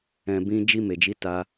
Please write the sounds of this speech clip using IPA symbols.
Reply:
ɛ̃˨ b ĩ˧ d͡ʒ i˧ m e˨ d͡ʒ i˨˦ t a˧

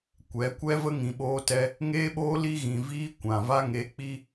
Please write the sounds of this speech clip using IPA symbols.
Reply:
kʷ ɛ˨˦ kʷ ɛ˦ v ə˦ ŋ ĩ˨ ɓ oː˧ t ɛ˧ | ŋ eː˦ ɓ oː˦ l i˧ ɣ ĩ˨ v iː˧ kʷ ã˨ v a˧ ŋ e˨˦ k͡p i˧

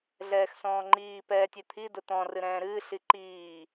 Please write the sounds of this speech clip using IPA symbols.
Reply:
ɮ ɛː x s ɔ̃ː ŋ͡ǃ iː p ɛː tʲ ɛ t̪ʰ i d ʊ t̪ ɔ̃ r ɨ ɾ ɛ̃ː ɾ ɨː ɬ i ǃ iː

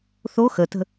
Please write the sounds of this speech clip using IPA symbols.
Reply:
θ o x ə t ə̤

